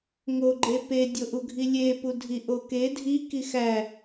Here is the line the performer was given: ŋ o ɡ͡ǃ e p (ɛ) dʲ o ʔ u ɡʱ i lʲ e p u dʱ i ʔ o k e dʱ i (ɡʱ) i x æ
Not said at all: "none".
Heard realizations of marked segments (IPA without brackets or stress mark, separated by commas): e, k